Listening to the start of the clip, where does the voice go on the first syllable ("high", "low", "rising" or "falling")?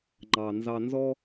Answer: low